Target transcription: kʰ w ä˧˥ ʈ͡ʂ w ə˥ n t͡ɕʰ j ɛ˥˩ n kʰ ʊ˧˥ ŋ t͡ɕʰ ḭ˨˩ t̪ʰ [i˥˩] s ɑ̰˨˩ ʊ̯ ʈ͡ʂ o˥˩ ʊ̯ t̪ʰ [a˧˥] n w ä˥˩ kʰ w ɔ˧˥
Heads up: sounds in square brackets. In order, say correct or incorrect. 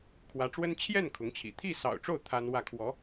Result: correct, incorrect: a˥

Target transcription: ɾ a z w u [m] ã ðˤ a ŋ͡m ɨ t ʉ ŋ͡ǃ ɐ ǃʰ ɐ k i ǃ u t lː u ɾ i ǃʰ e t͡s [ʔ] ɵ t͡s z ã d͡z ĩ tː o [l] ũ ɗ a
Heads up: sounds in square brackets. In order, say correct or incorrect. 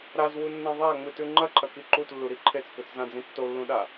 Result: incorrect: nː, incorrect: k, incorrect: lː

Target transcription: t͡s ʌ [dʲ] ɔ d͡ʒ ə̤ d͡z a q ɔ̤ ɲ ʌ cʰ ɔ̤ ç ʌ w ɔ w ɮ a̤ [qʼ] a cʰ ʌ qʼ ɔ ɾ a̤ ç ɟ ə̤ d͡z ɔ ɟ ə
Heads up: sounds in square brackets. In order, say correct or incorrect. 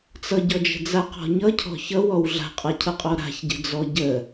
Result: incorrect: ɟ, correct

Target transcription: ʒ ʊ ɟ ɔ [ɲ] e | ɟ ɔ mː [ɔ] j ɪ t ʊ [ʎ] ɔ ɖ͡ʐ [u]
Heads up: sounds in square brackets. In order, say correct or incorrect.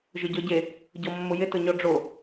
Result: incorrect: ɟ, incorrect: ʊ, incorrect: ɲ, incorrect: o

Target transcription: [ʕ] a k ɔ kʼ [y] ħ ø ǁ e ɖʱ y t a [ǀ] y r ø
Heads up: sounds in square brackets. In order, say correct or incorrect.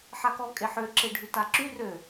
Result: incorrect: ħ, incorrect: e, incorrect: ǁ

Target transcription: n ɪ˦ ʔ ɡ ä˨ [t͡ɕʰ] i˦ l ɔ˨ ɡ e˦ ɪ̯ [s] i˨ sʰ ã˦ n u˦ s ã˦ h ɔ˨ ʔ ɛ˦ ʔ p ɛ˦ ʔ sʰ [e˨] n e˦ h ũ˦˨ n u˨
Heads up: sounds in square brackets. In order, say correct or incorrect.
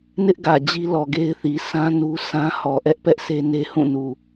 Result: incorrect: d͡ʑ, incorrect: θ, incorrect: e˦

